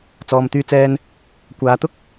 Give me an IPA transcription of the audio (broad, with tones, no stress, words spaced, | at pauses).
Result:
t͡sɔː˨mt̪yː˧t͡sɛː˧n | kʷaː˨˧t̪ʊ˥k̚